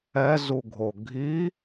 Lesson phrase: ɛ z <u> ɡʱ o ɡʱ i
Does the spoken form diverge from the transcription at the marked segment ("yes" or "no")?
no